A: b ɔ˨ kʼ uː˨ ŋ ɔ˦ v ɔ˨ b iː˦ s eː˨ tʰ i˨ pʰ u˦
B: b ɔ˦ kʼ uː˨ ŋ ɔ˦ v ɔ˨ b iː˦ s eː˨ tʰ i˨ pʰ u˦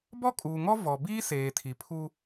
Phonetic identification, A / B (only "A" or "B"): B